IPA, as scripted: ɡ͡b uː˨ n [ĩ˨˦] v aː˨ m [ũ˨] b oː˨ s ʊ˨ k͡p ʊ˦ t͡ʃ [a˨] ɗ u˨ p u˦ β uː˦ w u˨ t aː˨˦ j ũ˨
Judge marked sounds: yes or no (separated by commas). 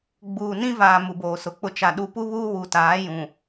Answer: no, no, yes